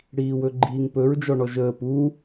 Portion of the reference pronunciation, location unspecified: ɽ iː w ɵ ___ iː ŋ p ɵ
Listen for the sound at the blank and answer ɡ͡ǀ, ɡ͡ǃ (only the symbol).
ɡ͡ǃ